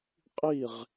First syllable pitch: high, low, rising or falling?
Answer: falling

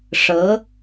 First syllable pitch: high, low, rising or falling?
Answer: rising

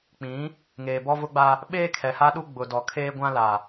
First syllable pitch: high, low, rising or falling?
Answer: rising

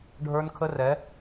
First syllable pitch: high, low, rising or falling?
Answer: high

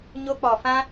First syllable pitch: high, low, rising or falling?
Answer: high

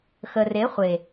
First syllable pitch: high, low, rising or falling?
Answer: low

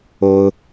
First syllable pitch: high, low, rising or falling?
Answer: high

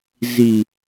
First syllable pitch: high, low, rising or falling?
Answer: low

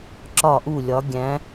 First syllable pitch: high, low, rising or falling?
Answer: falling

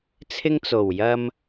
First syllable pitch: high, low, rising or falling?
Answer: high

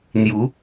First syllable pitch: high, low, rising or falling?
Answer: rising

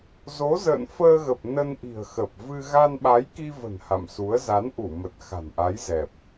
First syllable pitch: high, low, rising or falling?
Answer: rising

